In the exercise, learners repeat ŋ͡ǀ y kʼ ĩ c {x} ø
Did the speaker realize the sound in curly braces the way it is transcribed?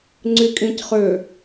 no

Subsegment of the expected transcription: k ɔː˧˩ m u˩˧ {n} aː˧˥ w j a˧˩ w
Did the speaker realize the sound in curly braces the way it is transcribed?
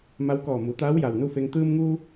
no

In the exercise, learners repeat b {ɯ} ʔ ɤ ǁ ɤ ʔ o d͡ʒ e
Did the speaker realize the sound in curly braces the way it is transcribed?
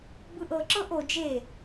yes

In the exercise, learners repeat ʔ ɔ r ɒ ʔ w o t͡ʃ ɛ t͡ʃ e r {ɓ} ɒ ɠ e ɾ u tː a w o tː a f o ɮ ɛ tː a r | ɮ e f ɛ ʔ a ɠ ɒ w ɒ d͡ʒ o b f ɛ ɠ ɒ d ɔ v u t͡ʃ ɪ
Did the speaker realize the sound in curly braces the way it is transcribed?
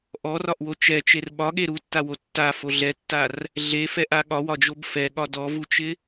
yes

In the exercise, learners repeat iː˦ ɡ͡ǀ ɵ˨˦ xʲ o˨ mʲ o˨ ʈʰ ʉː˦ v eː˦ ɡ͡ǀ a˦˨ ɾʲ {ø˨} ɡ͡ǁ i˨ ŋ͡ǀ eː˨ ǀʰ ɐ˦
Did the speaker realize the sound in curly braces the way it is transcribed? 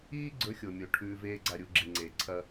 no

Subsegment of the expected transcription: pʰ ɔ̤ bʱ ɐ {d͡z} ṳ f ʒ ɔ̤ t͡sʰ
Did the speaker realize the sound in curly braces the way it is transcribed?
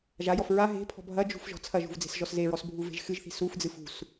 no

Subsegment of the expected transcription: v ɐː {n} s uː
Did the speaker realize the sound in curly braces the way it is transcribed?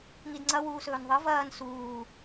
yes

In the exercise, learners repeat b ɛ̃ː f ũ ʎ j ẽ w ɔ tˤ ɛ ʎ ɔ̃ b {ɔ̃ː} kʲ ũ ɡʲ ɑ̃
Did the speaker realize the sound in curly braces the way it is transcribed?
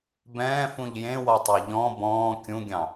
yes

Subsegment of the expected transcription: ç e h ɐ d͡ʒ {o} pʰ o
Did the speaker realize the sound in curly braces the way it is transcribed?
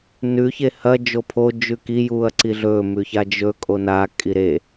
yes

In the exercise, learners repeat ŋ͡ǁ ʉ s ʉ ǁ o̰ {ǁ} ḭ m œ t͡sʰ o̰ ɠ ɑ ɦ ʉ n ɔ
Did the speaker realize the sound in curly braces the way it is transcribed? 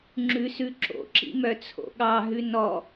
yes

